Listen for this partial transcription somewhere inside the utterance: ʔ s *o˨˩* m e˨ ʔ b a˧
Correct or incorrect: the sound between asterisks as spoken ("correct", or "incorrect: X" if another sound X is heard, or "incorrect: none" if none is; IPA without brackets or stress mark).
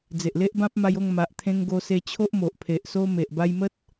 incorrect: o˦